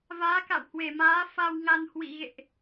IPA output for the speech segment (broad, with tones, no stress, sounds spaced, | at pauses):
v aː˨˦ k a̰˧˨ w h w e˧˩ m aː˨˦ f a˧ w ŋ a˧ n h w ḭ˧˨ ɣ ḛ˧˨ ʔ